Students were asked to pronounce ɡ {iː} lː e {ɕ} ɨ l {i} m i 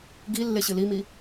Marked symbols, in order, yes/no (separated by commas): no, yes, yes